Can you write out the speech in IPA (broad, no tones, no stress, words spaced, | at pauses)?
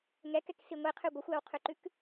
ŋɛkɛksi ŋʷiqʰʉ ɡʷəxʷæwqʰʉǃʉk